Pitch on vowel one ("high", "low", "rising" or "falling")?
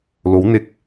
rising